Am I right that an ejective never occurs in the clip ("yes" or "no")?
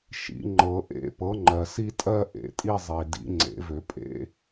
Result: no